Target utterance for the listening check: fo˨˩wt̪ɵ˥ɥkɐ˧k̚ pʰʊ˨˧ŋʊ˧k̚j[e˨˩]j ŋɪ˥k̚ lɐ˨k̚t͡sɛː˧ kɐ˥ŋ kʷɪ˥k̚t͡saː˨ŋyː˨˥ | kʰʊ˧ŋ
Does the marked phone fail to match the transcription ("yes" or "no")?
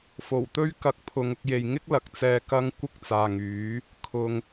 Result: yes